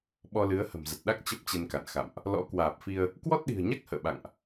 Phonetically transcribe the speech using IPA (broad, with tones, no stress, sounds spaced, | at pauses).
ɓ ɔ˧ l ɨ˨˦ ə̯ h ə̤˨˩ m z ə˨˩ t̚ ɗ a˦˥ k̚ t͡ɕ ə˦˥ p̚ t͡ɕ e˧ n k a̰˧˨ n x a̰˧˨ m ʔ | l ɔ̰˧˥ k w aː˨˩ p̚ f i˧ ə̯ | k w ɔ˦˥ t̚ ɗ i̤˨˩ ə̯ ɲ a˦˥ k̚ h ə̰ː˧˨ ɓ a̰˧˨ ŋ ʔ